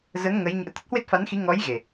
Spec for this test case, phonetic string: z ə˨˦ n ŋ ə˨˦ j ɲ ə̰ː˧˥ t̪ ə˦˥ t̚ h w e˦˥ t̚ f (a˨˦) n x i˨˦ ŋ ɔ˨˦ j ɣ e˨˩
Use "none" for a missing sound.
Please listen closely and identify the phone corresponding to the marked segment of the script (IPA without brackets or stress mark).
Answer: a˨˦